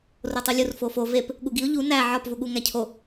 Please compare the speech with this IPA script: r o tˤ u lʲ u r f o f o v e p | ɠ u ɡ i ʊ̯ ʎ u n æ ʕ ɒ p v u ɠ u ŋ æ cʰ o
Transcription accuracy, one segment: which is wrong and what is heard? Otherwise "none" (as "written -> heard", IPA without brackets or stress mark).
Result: none